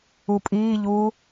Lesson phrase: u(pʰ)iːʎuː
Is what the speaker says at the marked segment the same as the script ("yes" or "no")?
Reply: no